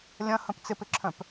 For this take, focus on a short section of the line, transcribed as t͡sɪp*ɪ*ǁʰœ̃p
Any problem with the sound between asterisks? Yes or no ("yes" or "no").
no